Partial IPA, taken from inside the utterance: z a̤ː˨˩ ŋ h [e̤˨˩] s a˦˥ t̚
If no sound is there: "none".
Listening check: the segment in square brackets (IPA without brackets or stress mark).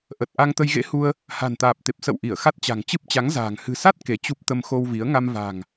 ɨ̤˨˩